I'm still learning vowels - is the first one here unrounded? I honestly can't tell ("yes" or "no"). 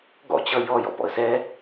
no